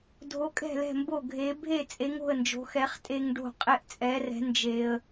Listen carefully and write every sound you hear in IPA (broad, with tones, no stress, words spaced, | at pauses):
dʱo˨˥kʼɛ̤˥˩lɛ̤˥˩ mbo˥˩ɡʱe˨˥ bʱe˥˩t͡sʼe˨˥ŋo̤˥˩ə̯ nd͡ʒo̤˨˥xɛ˨˥χ tʼe˦ŋɖo̤˥˩ qʼe˦ʔt͡sʼɛ˨˥rɛ̤˨˥ nd͡ʒe˦ə̯